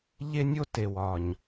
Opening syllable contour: high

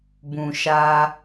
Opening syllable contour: low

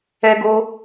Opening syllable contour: high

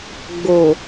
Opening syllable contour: low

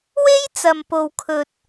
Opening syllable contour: high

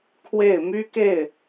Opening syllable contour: falling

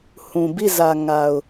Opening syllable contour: low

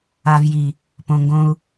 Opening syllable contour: low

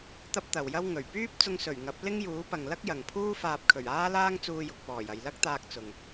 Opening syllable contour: high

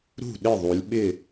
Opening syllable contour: falling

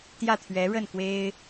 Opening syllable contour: falling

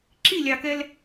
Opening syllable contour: falling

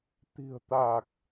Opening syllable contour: low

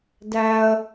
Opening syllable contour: high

